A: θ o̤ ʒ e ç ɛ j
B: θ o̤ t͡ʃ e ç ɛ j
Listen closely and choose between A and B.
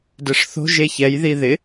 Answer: A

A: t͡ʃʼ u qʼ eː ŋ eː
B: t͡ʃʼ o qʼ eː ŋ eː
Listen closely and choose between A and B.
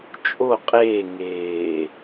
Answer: B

